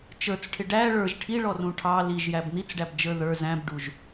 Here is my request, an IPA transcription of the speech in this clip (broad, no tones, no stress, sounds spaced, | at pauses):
t͡ʃ ə˞ t͡s ʈʰ ɪ ɖ æ ɭ ə˞ ʒ ʈʰ i ɭ ɔ r ũ ʈʰ ɑ l i ʒ j æ b n̪ i t͡s ɖ æ b d͡ʒ ə˞ ð ə˞ z æ̃ b ɖ u ʒ